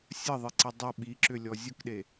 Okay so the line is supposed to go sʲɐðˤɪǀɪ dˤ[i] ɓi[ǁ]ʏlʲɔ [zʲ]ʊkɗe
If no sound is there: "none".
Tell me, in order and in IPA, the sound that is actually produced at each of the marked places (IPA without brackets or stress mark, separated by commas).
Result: ɪ, ǁ, zʲ